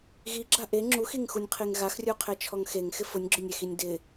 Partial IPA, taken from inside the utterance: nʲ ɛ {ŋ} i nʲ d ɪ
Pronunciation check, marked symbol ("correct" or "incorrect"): incorrect